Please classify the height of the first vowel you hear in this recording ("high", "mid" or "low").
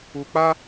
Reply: high